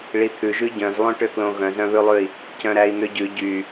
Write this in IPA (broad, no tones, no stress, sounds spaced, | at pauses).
ɭ i t̪ʰ ʉ ʒ ʉ ɟ œ̃ z lˠ õ ʈ ø k l õ ɣ œ̃ z œ̃ β ʉ lˠ ʉ i̯ | c œ̃ ɾ æ i̯ n̪ ø ɟ ʉ ɟ y